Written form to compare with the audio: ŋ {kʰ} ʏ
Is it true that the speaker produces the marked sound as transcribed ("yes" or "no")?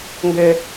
no